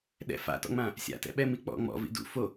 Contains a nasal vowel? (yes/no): yes